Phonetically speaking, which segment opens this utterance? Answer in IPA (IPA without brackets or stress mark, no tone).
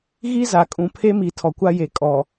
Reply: ɣ